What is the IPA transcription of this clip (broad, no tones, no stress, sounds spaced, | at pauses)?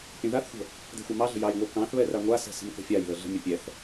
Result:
pʲ ə̃ ð a θ xʷ ə̤ | d ɛ̤ xʷ ɑ m ɑ ɮ ə̤ j ɑ j ŋʷ a k ɑ̃ θ β ɛ r a ŋʷ a s ɛ̤ s ə̤ m k ə̤ fʲ a j ð ə ɮ ə̤ mʲ ə pʲ ɛ θ